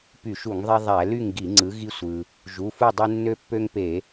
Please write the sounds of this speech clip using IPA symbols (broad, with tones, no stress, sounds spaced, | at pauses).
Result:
p y˧˩˧ ʃ u˧˩˧ ŋ ðˤ e˦ ðˤ æ˧˩˧ l y˥˨ ŋ ɡ i˧˩˧ ŋ͡ǀ ɯ˨˦ ɣ i˦ sʷ ɯ˩ | ʒ u˩˧˩ f u˥˨ dˤ ɯ˦ nː ø˦ pː ø˦ ŋ p e˧˩˧